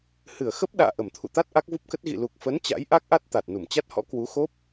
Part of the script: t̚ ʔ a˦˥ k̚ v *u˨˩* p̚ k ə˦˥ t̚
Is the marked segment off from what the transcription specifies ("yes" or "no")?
yes